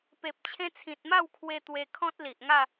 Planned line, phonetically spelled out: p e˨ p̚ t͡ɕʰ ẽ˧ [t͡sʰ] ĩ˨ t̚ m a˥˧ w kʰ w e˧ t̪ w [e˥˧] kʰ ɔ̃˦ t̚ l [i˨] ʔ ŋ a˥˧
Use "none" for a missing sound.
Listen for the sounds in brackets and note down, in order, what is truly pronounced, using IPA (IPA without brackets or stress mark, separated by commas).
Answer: t͡sʰ, e˧, i˨